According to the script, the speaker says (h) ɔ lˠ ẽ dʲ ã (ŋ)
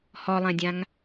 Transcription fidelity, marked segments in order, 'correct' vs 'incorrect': correct, correct

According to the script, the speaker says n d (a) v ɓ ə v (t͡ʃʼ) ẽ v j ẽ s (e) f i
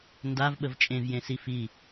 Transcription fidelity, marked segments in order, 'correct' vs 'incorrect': correct, correct, incorrect: i

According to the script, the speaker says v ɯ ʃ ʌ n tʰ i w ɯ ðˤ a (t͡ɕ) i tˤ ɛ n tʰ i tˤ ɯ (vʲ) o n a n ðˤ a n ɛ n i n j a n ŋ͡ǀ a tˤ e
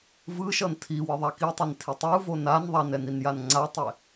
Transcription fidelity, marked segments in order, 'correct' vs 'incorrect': incorrect: k, incorrect: v

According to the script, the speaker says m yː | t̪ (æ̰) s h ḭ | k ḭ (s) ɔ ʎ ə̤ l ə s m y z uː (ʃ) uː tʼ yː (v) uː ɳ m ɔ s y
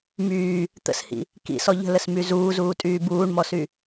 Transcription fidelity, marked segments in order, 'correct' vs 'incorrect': incorrect: ə̰, correct, incorrect: z, incorrect: b

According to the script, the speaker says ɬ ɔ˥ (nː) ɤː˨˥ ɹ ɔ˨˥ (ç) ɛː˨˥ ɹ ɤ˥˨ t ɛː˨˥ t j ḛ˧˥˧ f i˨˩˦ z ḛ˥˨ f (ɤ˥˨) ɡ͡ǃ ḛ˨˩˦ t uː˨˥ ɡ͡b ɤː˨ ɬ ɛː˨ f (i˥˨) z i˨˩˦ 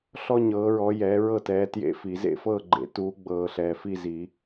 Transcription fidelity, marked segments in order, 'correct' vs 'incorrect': incorrect: ɲ, incorrect: j, correct, correct

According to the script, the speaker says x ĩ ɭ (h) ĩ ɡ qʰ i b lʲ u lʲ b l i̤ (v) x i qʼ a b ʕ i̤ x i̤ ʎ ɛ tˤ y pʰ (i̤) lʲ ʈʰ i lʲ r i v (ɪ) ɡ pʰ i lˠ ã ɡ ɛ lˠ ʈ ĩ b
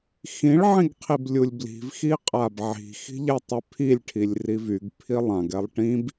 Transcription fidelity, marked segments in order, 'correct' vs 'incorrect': incorrect: ʕ, correct, incorrect: i, incorrect: y

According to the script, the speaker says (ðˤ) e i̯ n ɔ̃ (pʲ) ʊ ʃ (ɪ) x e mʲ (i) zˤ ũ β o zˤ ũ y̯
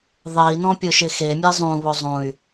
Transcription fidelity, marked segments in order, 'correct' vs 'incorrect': correct, correct, correct, incorrect: e

